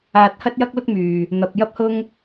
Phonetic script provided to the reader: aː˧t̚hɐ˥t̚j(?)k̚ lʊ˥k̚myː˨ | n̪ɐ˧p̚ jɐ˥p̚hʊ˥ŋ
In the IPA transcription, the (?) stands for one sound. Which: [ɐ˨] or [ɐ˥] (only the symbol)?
ɐ˥